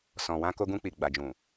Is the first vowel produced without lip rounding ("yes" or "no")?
no